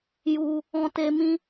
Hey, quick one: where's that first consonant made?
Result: palate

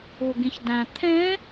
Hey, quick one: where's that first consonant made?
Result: velum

